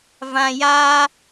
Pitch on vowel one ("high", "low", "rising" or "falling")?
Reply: low